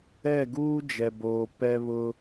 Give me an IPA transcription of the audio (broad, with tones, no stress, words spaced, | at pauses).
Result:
ɛ˦˨ɡuː˦d͡ʒɛ˨boː˨ pɛ˦βʊ˦